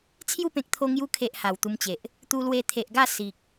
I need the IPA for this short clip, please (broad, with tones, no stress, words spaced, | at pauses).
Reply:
t͡sʰju˥˧pẽ˨k̚t̪ʰo˧ ŋju˧kʰe˨ʔ ha˨˩wt̪u˧mt͡ɕe˨ʔ | t̪u˧lwe˧ t̪ʰe˨ʔɡa˥˧ si˨k̚